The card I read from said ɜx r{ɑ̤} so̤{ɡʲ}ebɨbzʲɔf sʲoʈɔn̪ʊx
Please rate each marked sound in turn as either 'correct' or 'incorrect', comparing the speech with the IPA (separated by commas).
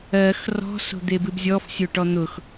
incorrect, incorrect